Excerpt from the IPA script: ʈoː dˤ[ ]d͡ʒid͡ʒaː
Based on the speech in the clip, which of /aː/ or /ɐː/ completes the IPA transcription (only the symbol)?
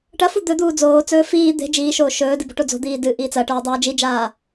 aː